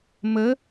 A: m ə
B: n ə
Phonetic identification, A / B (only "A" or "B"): A